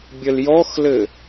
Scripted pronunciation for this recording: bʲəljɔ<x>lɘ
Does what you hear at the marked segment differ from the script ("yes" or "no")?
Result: no